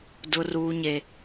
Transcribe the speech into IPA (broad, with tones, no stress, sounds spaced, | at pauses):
d ʊ˦ r uː˦ ɲ e˦